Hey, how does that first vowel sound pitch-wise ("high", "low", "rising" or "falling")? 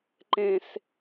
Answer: high